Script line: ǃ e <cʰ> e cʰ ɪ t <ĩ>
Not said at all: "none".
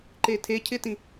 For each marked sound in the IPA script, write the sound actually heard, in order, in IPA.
tʰ, ĩ

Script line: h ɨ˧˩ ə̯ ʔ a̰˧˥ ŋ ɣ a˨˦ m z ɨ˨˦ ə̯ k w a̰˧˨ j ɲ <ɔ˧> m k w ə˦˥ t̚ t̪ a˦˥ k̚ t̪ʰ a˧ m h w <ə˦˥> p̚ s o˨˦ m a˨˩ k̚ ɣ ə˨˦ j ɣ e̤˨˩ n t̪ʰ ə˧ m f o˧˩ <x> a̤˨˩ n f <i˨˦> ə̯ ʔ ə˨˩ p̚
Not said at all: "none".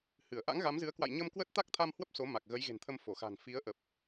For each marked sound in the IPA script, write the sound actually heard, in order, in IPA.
ə˧, ə˦˥, x, i˨˦

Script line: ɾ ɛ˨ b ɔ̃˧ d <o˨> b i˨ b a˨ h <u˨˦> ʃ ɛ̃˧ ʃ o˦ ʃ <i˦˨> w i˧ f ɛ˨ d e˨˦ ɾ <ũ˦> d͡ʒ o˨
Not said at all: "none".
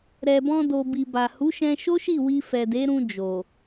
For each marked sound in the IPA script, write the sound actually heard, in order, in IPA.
o˨, u˨˦, i˦˨, ũ˧

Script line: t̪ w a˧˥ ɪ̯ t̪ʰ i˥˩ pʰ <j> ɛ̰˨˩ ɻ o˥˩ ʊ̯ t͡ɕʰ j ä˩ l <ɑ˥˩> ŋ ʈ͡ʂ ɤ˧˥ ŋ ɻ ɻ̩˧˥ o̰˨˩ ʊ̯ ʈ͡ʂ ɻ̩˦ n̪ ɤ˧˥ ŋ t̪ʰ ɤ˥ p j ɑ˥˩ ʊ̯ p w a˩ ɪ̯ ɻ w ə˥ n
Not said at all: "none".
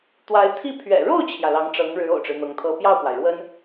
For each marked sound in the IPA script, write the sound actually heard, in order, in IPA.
ɥ, ɑ˧˥

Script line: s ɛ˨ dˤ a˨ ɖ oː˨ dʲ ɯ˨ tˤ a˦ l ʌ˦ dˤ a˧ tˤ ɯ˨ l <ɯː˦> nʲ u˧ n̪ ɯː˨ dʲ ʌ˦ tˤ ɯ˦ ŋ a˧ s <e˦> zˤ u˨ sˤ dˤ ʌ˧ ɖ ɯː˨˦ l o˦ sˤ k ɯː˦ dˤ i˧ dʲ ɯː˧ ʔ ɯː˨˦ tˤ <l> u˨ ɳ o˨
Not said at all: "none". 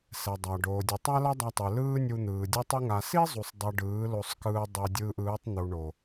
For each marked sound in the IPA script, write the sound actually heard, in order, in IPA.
ɯː˦, i˦, n̪

